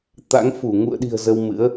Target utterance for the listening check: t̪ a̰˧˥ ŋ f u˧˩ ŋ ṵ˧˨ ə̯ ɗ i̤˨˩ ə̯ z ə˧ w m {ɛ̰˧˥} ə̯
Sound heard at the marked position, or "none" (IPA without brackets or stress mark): ɨ̰˧˥